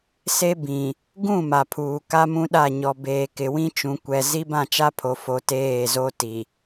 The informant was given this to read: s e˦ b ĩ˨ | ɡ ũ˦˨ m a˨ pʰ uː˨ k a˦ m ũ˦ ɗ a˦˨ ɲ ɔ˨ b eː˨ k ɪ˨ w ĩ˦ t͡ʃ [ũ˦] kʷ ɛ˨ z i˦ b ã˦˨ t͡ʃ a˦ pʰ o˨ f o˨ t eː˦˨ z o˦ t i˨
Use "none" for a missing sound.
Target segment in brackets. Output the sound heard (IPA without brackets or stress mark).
ũ˨